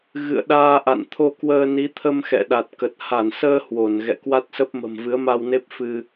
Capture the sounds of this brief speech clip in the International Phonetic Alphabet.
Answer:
ɣ ɨ̰˧˨ ə̯ ɗ aː˧ ʔ a̰˧˨ n t̪ʰ o˧ k w əː˧ n i˨˦ t̪ʰ ə˧ m x ɛ̰˧˨ ɗ a˨˩ t̚ k ə˨˩ t̚ h a˧˩ n s əː˧ h w o˧˩ n ɣ ɛ̰˧˨ k w a˦˥ t̚ s ə˦˥ p̚ m ə̤˨˩ m v ɨ˨˦ ə̯ m a˧ w n e˦˥ p̚ f ɨ˧

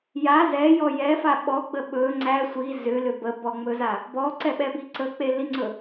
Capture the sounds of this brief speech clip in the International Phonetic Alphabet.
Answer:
j a z ɛ j ɔ j ɛ f a ɓ ɔ ɡ͡b ə ɓ ɵ ŋ͡ǀ æ sʷ i z ʏ l ʏ b ə b ɔ ŋ͡m ɵ z a | b ɔ ǀ ɛ ɓ ɛ b i ǀ ə k͡p e l i ŋ͡ǀ ɵ

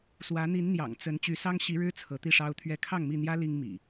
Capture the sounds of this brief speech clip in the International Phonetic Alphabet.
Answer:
s w ä˨˦ n̪ i˨˦ n n̪ j ɑ̰˨˩ ŋ t͡s ə˨˦ n t͡ɕ y˨˦ s ɑ˦ ŋ ɕ i˨˦ ɻ ɻ̩˦ t͡sʰ ɤ˨˦ t̪ i˥˨ ʂ ɑ˦ ʊ̯ t̪ʰ ɥ ɛ˥˨ kʰ ɑ˥˨ ŋ m i˥˨ n̪ j ä˦ l i˦ ŋ m ḭ˨˩

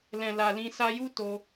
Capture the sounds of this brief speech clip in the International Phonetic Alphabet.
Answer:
l ɛ̃˨ l a˨ l ĩ˧ s a˧ j u˦ t o˧

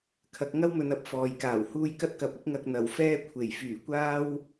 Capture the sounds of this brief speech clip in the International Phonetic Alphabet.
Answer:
kʰ ɐ˨˥ k̚ ŋ ɐ˥ w m ɵ˨˧ n ɐ˨ p̚ f ɔː˨ j k aː˨˩ w h uː˧ j k ɐ˥ t̚ k ɐ˨˥ p̚ ɪ˥ k̚ ŋ ɐ˧ k̚ n̪ ɐ˨˩ w f ɛː˥ kʷʰ e˨˩ j f yː˨˩ kʷ aː˥ w

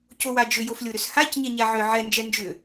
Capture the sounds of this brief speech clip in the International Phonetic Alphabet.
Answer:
c o w a d͡ʒ ʏ j o f lʲ o ɾ ʏ s h a c ɲ ɛ ɲ a ʕ ʏ ʕ ɛ n d͡ʒ ɛ n d͡ʒ ʏ

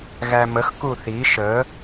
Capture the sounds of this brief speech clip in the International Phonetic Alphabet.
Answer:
ɣ æ m ə x k u θ i ʃ ə

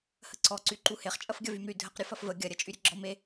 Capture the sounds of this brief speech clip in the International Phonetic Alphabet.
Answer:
h ə ǀ ɔ ǀ y ǃ u h e χ t͡ʃʼ ɐ f ɡʲ ɐ v y m ɾ y dʱ ə q ɾʲ ɔ f ɐ f v ə ɡʲ ɐ ɾʲ ɐ t͡ʃʼ y ɾʲ ə ɡ͡ǁ ɔ m e

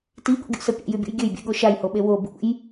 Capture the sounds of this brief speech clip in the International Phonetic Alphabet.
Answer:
t i ɠ o̰ ɡʲ ṵ s ə pʲ ɛ̰ j y bʲ ṵ j ɡʲ ø j bʲ ɛ̰ ɠ o ʃ a j h o ɓ e w o b ṵ j

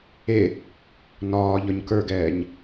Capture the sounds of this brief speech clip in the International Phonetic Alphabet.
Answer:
e | n ɒː ʎ ɒ ɲ k ə˞ ɡ ɛː ɲ

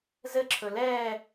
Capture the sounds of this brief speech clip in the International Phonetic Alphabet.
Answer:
z ɘ ǁʰ ɵ l ɛː

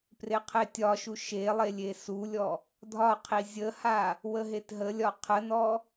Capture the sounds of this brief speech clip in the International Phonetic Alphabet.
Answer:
p r e qʰ e tʲ ɒ ʃ u ʃ e lˠ e lʲ e s u lʲ ɔ | dʱ ɒ qʰ i zʲ ə h a | w ə ɦ e t ɦ ə lʲ ɒ qʰ ə n ɔ

